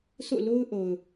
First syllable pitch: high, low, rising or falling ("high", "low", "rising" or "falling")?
falling